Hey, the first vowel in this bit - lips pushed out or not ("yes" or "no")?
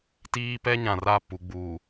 no